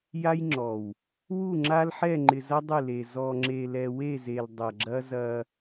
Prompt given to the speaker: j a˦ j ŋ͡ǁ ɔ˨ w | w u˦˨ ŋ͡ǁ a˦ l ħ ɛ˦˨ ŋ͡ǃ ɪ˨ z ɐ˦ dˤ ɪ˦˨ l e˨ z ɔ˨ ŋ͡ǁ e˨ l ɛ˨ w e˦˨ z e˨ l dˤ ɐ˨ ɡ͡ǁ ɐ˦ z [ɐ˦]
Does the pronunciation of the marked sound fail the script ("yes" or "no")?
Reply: no